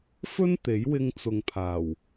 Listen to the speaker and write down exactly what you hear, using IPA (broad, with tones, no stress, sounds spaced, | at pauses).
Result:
f ɵ˥ n t̪ e˨˥ j w ɪ˧ ŋ t͡s ʊ˨ ŋ pʰ aː˨˩ w